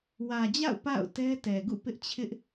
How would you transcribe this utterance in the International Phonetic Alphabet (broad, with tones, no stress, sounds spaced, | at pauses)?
w ä˨ d͡ʑ a̰˦˨ ʊ̯ p a̰˦˨ ʊ̯ t ɛ˦ t ɛ˨ ɡ ṵ˦˨ p ɪ˦ ʔ t͡ɕʰ ɪ˦ ʔ